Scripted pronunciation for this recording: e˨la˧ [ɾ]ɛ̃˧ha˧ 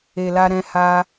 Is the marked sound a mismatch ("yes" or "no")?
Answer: no